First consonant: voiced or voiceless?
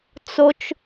voiceless